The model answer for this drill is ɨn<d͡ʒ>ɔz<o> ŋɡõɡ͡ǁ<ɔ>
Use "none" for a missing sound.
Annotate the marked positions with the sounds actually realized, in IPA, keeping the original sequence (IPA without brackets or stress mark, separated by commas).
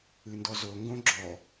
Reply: d, o, ɔ